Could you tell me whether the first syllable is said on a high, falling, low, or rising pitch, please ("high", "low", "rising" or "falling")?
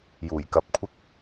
low